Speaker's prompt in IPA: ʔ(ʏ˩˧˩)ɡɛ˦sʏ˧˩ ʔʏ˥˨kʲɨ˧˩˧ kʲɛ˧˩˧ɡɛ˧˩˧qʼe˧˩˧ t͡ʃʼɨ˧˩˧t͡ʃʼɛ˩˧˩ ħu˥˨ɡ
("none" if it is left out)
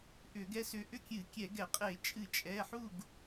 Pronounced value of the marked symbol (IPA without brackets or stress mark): ʏ˧˩˧